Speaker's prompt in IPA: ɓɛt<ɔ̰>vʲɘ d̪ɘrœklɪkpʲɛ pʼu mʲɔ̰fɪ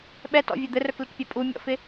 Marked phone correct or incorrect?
correct